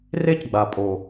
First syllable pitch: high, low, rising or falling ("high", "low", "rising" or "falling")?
high